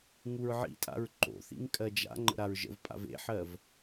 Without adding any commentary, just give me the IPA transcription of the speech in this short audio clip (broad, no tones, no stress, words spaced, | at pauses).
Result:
ŋuɹʕḭtʼa̰ɹ ǃo̰θḭŋ kʼɜd͡ʒa̰ŋ͡ǃə̰ ɾaɹʒə̰vpʼa̰v ḛħɜv